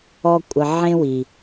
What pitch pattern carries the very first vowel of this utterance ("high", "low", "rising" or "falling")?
high